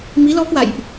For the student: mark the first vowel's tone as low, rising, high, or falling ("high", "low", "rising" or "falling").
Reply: rising